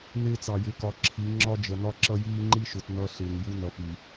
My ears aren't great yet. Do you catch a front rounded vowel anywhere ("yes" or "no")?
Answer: no